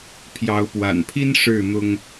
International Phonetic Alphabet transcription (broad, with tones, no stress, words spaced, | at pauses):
pʰjɑ˨˦ʊ̯pwa̰˨˩npʰi˦n ʂɻ̩˥˨ n̪ʊ˦ŋ